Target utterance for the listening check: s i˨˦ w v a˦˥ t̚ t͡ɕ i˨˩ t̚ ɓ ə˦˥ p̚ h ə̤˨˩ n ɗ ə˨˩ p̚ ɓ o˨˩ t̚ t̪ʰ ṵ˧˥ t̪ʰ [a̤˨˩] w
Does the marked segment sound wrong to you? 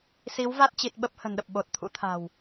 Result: no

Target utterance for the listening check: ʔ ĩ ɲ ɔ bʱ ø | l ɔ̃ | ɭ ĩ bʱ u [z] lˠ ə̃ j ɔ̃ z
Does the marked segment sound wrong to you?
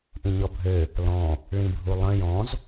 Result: yes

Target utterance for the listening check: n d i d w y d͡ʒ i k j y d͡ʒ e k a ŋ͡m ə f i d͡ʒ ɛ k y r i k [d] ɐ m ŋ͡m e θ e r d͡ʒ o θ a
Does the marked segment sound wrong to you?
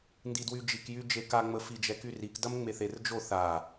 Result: no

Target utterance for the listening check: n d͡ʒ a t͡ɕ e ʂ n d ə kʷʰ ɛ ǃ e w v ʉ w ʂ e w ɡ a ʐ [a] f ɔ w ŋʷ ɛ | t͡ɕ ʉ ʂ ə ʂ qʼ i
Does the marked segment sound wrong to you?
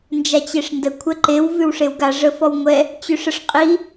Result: yes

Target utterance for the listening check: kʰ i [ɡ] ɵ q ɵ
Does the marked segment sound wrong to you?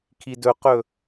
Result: yes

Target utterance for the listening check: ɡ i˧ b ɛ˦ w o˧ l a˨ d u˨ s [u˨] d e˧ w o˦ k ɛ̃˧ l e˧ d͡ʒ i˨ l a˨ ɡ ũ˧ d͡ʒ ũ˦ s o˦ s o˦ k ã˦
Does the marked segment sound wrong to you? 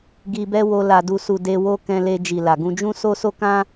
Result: no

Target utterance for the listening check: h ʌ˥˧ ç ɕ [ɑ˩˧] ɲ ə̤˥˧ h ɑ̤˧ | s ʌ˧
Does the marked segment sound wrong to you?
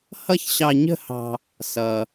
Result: yes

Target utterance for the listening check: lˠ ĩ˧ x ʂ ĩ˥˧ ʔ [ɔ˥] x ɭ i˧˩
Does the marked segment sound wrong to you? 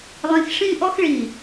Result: no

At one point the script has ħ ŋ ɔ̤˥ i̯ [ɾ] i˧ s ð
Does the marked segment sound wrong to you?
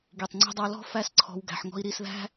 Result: no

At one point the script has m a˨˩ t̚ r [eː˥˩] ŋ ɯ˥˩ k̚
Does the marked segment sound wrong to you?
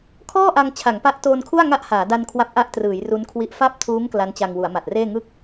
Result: no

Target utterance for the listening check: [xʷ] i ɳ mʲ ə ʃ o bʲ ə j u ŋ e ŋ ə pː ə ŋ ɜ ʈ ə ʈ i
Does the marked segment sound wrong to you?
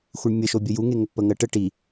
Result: no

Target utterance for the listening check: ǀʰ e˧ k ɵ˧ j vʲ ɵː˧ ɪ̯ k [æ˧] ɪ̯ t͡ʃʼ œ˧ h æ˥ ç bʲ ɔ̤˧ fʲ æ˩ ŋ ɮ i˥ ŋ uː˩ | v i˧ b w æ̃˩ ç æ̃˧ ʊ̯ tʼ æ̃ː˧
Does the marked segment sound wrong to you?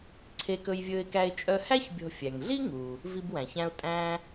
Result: no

